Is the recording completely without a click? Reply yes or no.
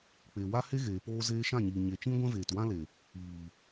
yes